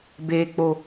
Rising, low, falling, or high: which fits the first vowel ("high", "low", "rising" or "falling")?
low